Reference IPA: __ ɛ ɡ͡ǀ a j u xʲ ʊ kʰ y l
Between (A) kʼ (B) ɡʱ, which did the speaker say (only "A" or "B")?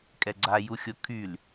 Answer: A